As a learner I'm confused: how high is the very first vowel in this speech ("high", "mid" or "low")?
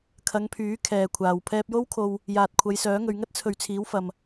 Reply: low